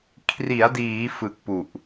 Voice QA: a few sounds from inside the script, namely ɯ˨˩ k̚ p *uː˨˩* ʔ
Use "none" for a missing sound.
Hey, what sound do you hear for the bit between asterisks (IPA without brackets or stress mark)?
u˨˩